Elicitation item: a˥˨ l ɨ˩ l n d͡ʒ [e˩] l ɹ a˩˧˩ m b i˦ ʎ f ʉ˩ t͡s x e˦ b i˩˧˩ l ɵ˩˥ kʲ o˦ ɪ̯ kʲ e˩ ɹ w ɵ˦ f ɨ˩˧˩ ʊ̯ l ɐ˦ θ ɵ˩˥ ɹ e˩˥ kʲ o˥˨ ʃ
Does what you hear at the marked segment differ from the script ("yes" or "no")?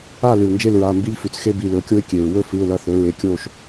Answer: yes